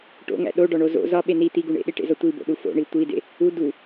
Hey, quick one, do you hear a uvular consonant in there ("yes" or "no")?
no